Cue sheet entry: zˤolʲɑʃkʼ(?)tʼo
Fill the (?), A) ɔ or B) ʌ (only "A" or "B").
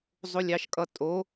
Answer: B